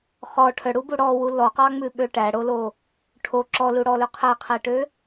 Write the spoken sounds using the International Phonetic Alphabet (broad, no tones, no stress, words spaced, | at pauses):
χɔ ʈʰœɽubu ɽɔwu lɔqɑŋ͡mʉɓø ʈæɽolo | ʈʰo ǁɔluɽɔlø qʰæqʰæʈø